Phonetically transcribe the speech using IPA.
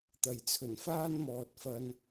t̪ɐ˨˩jt͡sʰɵ˨˩n faː˥nmɔː˨t̚fɐ˧n

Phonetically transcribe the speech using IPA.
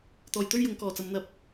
t̪ɔː˨˩jt̪ɵ˥ɥjʊ˨˧ŋ kɔː˨˩t͡sɐ˨˧mn̪ɐ˧p̚

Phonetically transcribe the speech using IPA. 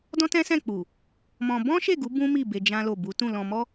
dɔ̃˦tɛ̃˦sɛ̃˦˨k͡pu˨ | mɔ̃˧ bɔ̃˦ʃe˦˨ɡu˨˦ bũ˦mi˦˨be˧ d͡ʒã˦lo˦˨ bu˨˦tũ˦˨ lɔ̃˧mɔ˦

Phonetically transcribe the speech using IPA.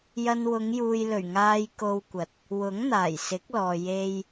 jɐ˧nwʊ˨˧ŋ juː˨jlɵ˨˩ɥ ŋaː˧jko˧wkʷɐ˨˥t̚ | wʊ˨˥ŋn̪aː˨˩j sɪ˨˥k̚lɔː˨ je˨j

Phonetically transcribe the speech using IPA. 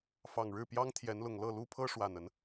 fɑ˨˩ŋɻɻ̩˥˨ pjɑ˦ŋ t̪ʰjɛ˨˦nlʊ˨˩ŋ lɤ˥˨lu˦pʰɤ˦ ʂwa˨˩nə˨˦n

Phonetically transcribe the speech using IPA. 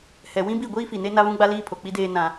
hɛ˨wĩ˦bi˦˨ ɡʷiː˦fi˨ ne˦ na˦βũ˦ɡ͡ba˦ liː˦pʰo˨k͡pi˦deː˦ nã˦

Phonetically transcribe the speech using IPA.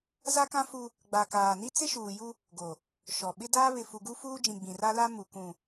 za˦kã˦fu˦ | ɡ͡ba˨kaː˨ni˦ t͡sɪ˦ʃuː˨ju˦ | ɡo˨ | ʃɔ˨ ɓɪ˦daː˦ βɪ˨fu˨ɡu˦ fuː˦d͡ʒĩ˨ ɡ͡bĩ˨ra˦la˦ mu˨kũ˨

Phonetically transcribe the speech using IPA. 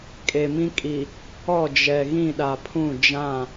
kʼe˨mĩ˦kʼi˨ | ɔ˦˨d͡ʒɛ˨ ɣĩ˦˨ɗa˨pʰũ˦˨ d͡ʒã˦˨

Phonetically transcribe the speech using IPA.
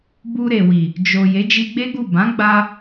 bu˧ɾe˨wi˨ | d͡ʒo˨ je˨˦d͡ʒi˧ɡ͡be˦ɡu˦˨ bã˨˦ɡ͡ba˧

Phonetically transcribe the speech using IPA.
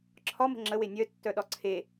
ǁʰɒmə̤ ŋ͡ǁəwe nʲœtːœɗɒ ǀʰe

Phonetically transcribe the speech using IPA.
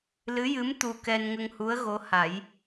lɨ˧˥jɨ˧˥m t̪u˧kɛ˧n ŋə˧ŋhu˧˥ə̯ ɣo˧˥ha˨˩˦j

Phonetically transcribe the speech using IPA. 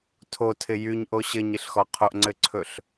tʰotʰɪ jyɲʔo ɕɘɲɪɬxɔ qʰoʔŋ͡ǀɘǀʰɵɬ

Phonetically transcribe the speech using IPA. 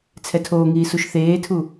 t͡sʰɛtʰoːŋiː suʃθeːtʰu

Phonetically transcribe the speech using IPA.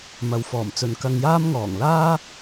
mɐ˨wfɔː˨˩mt͡sɵ˨n kɐ˧ŋjaː˥mŋɔː˨˩ŋ laː˥

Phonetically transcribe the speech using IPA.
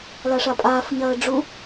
laʂapʼaːf ɲɐːɖ͡ʐu

